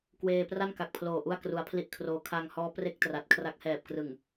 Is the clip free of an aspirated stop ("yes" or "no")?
no